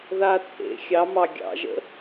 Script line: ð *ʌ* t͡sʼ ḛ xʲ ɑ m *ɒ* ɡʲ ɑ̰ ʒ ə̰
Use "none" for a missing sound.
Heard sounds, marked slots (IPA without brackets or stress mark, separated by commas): a, ɑ